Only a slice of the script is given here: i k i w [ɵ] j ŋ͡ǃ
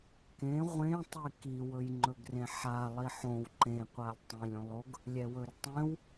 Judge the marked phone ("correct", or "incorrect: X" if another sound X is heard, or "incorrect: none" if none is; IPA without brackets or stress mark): correct